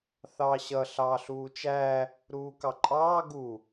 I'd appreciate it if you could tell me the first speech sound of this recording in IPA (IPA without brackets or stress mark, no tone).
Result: θ